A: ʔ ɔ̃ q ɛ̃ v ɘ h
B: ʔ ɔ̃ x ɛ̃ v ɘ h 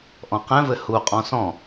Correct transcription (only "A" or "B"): A